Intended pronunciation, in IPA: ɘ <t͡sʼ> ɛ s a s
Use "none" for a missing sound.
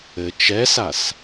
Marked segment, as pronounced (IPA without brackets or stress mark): t͡ʃ